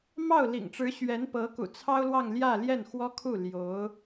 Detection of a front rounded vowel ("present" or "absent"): absent